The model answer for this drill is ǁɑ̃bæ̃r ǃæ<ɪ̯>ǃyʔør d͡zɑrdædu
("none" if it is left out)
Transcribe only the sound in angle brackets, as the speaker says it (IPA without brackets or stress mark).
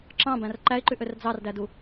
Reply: ɪ̯